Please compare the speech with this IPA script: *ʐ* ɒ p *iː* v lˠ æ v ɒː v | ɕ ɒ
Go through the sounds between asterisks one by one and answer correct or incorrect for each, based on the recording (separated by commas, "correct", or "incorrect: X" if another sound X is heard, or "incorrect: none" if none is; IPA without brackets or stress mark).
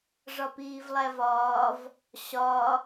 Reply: correct, correct